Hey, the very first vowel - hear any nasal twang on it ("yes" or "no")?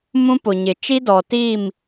yes